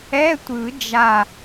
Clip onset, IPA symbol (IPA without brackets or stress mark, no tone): ɛ